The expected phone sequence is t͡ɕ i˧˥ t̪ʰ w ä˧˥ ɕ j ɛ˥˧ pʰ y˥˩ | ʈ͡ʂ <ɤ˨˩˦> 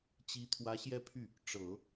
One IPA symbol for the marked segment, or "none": ɤ˨˩˦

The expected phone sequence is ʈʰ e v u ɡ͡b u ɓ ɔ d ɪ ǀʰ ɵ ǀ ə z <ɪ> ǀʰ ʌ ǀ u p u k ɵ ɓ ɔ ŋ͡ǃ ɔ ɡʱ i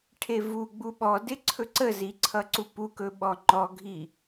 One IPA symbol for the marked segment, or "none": i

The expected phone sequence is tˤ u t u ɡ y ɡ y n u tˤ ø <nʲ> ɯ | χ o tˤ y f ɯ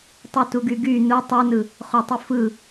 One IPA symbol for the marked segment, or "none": n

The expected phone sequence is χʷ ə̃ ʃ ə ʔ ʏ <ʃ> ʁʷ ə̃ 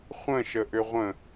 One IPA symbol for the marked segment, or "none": none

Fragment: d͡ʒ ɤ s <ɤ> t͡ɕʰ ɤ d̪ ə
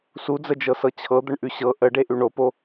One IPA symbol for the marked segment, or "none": ɤ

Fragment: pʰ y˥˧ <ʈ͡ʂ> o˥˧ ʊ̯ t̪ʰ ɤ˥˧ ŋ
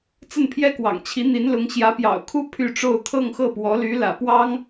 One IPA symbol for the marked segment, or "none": ʈ͡ʂ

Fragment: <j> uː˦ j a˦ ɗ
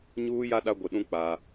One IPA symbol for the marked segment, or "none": ɲ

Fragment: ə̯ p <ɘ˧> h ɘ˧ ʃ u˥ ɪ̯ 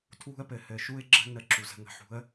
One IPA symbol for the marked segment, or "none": ɘ˧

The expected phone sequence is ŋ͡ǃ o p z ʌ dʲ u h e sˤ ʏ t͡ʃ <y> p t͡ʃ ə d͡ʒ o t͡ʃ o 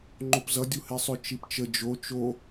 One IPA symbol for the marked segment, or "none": i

